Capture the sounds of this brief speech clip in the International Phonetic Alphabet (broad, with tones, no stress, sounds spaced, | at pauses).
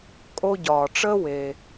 kʼ o˦ ɟ ɒː˨ ʈ͡ʂ əː˥ w e˨